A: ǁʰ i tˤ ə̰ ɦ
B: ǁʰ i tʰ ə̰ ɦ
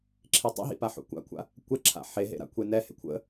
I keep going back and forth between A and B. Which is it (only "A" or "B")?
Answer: A